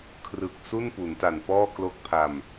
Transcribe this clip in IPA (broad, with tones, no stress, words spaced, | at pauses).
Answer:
kʰrɯ˨˩k̚su˥˩n pu˩˦nta˨˩npɔː˥˩ klo˦˥k̚pʰa˧m